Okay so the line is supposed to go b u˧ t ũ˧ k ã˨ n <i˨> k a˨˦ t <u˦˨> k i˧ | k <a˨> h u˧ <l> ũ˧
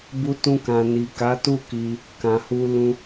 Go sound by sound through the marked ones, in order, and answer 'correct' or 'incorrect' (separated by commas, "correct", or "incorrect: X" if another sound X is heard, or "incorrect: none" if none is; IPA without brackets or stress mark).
correct, correct, incorrect: ã˨, correct